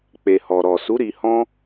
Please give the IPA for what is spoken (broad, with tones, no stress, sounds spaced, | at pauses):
k͡p e˨ h ɔ˨ ɾ ɔ˨ s u˨˦ ɾ i˧ h ɔ̃˦